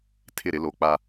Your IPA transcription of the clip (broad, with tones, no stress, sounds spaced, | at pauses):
tʰ ɪ˦˨ ɾ ɪ˨˦ l o˨ k͡p a˦